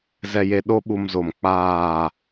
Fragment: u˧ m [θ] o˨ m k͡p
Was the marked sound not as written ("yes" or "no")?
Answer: yes